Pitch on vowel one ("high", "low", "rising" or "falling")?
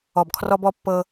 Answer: low